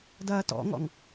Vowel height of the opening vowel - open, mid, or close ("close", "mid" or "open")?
open